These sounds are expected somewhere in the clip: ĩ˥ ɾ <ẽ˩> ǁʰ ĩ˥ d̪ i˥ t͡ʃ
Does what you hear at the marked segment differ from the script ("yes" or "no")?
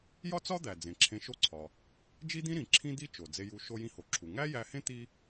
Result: yes